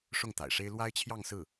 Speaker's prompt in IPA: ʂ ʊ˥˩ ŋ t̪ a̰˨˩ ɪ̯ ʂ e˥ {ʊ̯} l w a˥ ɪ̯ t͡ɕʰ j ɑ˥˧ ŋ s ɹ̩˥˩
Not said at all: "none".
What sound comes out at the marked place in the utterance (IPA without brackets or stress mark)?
ɪ̯